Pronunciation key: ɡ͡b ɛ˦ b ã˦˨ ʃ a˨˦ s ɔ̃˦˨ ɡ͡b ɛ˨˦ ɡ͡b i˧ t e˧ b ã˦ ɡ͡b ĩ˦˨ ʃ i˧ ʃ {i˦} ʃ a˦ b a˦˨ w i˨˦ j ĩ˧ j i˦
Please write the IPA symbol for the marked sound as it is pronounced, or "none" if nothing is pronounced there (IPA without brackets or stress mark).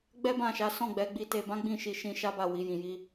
ĩ˦